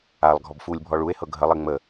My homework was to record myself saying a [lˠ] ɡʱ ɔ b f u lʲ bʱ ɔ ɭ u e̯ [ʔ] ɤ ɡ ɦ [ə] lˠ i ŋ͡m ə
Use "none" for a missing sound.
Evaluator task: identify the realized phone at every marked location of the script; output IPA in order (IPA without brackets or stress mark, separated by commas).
lˠ, h, ə